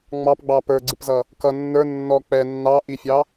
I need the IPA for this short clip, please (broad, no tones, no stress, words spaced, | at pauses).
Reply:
ŋ͡mɑpɡ͡bɑ pə˞ɡ͡ǀɪpzʌ | kʌ nːə˞ nːɔ k͡pɛ nːɑʔifʲɑ